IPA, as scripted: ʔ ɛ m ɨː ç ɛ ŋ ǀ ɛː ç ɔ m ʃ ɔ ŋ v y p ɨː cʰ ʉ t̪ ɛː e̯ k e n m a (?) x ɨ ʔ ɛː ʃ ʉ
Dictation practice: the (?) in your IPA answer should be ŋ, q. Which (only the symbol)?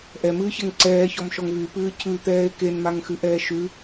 ŋ